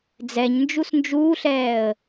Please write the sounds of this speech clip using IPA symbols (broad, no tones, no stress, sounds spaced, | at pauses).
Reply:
d͡z ɛ ɲ n d͡ʒ u s n d͡ʒ uː ɬ ɛː ə̯